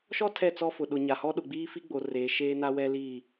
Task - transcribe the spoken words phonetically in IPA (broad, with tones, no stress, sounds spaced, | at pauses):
ʃ ɔ˦ tʰ ɛ˦˨ t͡s ɔ˦ f ʊ˨ ɗ ʊ˨ ɲ a˨ h ɔ˦ ɗ ʊ˨ ɡ͡b iː˦ f i˦ ɡ͡b o˨ r eː˨ ʃ eː˦ n a˦ w ɛ˦ l iː˦˨